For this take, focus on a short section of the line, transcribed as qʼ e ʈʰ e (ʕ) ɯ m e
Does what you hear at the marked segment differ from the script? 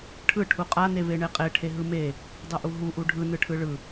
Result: yes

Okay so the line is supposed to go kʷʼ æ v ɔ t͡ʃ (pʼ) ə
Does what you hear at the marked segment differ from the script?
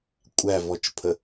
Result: yes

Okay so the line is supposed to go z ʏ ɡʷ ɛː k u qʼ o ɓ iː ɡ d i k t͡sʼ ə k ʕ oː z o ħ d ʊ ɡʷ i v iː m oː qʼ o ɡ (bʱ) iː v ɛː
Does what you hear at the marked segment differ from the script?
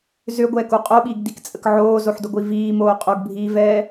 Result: no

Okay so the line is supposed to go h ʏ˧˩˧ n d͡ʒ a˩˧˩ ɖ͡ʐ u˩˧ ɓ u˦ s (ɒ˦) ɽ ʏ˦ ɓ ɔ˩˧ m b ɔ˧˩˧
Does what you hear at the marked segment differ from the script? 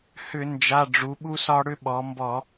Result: no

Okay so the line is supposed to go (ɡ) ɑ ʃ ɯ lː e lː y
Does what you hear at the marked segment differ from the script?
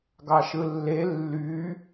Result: no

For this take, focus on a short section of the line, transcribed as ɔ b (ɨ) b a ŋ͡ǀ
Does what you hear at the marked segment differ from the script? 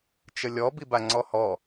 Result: yes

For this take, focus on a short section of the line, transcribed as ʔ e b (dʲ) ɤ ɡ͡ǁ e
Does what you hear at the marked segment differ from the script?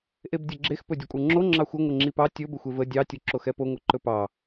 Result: no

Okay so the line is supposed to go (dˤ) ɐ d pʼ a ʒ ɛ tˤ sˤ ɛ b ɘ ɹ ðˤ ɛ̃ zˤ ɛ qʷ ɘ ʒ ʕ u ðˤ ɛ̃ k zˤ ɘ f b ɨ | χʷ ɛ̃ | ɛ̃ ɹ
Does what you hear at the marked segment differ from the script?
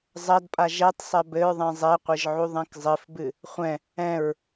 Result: yes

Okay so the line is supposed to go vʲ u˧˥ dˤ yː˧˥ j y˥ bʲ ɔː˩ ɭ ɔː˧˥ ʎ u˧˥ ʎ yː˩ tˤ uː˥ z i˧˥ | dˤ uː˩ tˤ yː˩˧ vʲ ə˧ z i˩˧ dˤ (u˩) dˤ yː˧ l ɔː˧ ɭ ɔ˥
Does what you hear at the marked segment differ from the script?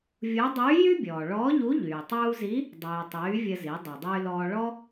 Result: no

